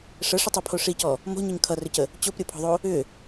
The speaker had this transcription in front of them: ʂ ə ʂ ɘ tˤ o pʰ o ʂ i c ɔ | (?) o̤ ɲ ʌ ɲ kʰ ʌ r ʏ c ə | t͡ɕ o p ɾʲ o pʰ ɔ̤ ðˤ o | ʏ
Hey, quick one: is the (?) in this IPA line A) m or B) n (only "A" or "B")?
A